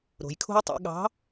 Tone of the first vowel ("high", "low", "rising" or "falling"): low